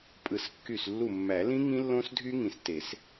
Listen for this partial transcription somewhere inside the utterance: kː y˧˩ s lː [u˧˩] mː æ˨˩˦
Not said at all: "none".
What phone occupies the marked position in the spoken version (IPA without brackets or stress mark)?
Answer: u˧˩